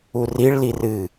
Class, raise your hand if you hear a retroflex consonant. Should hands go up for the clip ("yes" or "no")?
yes